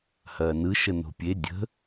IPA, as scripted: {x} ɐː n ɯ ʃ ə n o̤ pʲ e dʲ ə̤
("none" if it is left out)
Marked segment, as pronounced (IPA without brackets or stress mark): h